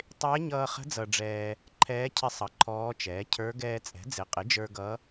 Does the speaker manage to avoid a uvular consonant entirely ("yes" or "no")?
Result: no